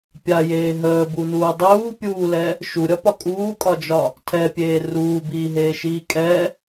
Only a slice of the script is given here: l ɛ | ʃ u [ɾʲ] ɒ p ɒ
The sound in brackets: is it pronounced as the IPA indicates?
yes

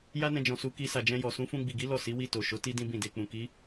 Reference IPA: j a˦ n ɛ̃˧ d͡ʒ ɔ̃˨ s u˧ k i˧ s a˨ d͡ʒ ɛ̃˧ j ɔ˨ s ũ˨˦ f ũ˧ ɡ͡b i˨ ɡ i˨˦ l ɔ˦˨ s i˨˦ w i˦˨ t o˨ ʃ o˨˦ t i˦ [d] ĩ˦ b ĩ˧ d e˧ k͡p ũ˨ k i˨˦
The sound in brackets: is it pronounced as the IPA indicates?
yes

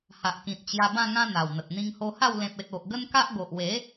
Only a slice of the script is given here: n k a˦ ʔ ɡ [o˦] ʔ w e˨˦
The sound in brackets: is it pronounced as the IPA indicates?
no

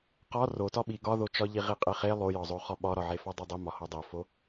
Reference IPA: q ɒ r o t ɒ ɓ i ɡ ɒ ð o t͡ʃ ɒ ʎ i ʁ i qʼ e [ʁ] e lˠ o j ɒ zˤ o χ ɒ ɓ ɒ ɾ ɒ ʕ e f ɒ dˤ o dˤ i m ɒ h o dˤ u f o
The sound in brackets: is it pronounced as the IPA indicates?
no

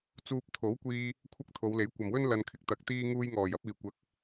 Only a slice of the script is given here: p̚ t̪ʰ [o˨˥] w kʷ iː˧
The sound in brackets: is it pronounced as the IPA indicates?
yes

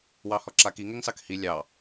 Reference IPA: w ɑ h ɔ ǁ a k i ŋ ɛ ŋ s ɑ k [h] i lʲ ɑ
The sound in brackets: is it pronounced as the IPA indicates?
yes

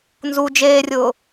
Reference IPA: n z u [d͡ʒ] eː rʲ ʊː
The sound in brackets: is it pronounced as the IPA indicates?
yes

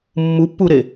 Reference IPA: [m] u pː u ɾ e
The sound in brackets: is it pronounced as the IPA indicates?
no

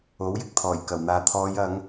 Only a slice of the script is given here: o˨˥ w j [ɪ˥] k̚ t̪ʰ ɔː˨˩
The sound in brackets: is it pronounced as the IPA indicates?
no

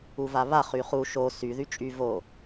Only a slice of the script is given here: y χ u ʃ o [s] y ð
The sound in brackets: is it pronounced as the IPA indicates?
yes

